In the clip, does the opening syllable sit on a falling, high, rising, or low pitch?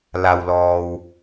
low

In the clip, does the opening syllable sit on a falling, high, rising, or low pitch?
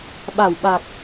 low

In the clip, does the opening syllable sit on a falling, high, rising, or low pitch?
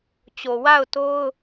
low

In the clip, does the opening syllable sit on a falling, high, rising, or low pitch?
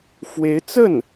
rising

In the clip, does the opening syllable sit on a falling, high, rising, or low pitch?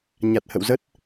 low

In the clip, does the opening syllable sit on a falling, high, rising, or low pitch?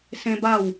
high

